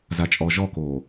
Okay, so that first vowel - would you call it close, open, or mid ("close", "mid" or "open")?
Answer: open